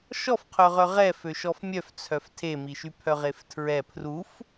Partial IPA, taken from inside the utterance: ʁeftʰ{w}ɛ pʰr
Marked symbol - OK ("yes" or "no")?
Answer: no